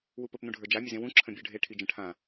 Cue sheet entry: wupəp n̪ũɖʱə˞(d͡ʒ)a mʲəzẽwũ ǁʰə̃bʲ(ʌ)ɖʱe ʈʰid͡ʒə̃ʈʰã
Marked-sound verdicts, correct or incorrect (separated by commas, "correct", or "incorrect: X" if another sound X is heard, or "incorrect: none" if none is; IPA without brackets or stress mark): correct, incorrect: ə˞